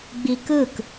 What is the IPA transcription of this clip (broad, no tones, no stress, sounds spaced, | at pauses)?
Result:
ɡ͡b i k ɯ k